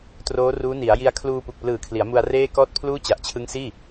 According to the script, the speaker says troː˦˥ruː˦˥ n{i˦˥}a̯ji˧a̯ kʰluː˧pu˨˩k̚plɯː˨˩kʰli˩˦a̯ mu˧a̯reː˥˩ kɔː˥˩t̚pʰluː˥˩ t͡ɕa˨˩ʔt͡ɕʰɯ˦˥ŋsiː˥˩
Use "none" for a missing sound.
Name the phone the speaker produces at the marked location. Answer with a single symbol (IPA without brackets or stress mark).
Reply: i˩˦